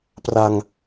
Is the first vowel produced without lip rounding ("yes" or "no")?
yes